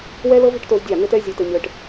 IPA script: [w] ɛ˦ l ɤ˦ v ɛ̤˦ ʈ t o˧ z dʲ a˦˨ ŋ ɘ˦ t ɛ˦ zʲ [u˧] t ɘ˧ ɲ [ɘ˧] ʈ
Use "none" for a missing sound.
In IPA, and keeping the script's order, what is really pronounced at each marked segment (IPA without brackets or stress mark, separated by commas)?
w, o˧, ɘ˧